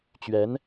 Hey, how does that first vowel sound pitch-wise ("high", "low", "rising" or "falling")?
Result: rising